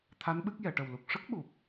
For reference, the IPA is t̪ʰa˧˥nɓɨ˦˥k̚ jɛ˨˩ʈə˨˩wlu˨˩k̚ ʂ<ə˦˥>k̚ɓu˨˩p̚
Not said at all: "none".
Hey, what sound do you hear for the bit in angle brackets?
ə˦˥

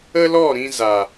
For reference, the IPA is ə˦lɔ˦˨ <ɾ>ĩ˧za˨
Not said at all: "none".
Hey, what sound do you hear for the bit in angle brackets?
ɾ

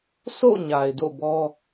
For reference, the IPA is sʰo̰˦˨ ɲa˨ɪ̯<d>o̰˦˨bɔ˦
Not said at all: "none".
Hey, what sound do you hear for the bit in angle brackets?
d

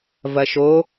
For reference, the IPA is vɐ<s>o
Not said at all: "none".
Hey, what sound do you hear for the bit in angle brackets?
ʃ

